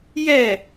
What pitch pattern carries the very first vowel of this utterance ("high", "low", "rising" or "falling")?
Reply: falling